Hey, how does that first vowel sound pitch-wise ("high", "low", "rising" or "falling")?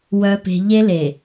low